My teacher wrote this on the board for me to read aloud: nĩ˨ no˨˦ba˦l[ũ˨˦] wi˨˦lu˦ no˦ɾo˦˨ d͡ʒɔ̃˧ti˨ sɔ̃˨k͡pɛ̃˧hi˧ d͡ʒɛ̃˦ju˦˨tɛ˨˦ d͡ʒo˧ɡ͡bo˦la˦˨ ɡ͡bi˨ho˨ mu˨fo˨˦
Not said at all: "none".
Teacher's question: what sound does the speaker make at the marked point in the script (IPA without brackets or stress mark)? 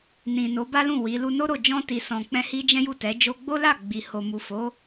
ũ˦˨